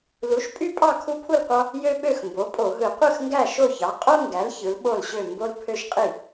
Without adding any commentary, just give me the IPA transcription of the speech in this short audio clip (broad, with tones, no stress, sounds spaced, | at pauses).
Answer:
l u˩˥ ʃ pʼ y˦ pʼ ɑ˥˩ kʰ u˦ pʰ u˥˩ l qʷ ɑ˦ | j ø˦ ɓ ø˥˩ x m b o˩˥ pʼ o˧˩˧ ɦ ɯ˧˩˧ qʷ ɯ˥˩ x ŋ ɡ æ˥˩ ʃ o˥˩ ç ɑ˩˥ qʼ o˦ ŋ ɡ æ˩˥ l ç ɯ˩˥ l ɓ o˥˩ l ɕ ø˥˩ m b o˦ l pʰ ø˦ ʃ qʼ i˥˩